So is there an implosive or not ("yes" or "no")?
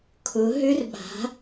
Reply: yes